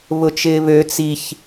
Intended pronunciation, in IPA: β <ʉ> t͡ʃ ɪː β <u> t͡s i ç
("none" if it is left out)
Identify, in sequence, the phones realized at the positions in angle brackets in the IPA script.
ʊ, ø

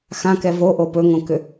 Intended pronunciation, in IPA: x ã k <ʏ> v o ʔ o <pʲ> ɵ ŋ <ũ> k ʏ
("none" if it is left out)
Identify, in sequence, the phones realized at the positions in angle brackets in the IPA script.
ɛ, p, õ

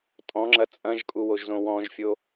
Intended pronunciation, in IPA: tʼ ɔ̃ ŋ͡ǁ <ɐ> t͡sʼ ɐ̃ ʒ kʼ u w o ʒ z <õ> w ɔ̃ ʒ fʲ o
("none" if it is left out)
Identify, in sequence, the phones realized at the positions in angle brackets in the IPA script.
ɐ, õ

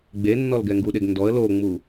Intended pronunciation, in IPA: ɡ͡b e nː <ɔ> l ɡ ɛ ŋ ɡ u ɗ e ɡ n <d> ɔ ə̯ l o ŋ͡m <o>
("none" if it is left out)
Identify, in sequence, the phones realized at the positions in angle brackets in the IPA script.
ɔ, d, u

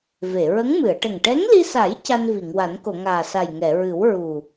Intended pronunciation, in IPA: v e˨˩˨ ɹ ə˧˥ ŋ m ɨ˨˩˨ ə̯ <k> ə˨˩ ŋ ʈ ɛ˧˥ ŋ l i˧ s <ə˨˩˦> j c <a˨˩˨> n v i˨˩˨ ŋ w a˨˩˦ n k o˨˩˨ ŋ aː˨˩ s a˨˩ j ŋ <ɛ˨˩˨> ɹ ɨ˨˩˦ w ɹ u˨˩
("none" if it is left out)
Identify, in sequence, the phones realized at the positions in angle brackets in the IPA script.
ʈ, a˨˩˦, a˧, ɛ˨˩˨

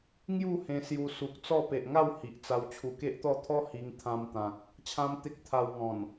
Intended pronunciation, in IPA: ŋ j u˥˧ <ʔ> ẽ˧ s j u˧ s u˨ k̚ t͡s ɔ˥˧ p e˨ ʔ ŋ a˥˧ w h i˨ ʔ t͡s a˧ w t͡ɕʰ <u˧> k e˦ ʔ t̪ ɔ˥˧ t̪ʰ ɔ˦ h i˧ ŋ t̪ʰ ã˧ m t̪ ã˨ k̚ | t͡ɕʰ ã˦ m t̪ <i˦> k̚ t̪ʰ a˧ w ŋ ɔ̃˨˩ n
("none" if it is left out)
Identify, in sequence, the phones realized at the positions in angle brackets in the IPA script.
h, u˨˩, e˦

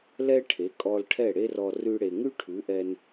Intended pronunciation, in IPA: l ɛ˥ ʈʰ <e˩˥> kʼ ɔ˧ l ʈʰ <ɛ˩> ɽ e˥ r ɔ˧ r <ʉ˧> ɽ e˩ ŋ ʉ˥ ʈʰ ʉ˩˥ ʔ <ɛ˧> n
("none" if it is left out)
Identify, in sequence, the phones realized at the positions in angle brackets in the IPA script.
e˩˥, ɛ˥˩, ʉ˧, ɛ˧

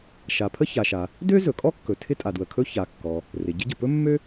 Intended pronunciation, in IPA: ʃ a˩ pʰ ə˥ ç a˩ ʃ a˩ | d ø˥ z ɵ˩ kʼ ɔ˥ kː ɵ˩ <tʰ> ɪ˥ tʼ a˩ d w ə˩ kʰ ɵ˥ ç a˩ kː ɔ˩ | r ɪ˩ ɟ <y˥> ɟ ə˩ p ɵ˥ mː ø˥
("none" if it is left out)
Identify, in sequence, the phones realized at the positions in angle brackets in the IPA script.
tʰ, ɪ˥

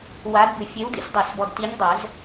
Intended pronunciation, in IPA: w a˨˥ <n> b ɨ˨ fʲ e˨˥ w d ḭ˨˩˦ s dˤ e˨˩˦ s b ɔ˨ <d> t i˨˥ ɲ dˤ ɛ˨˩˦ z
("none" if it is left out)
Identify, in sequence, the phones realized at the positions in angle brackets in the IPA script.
d, d

